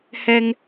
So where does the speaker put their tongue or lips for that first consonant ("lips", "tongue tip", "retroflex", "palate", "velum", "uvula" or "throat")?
throat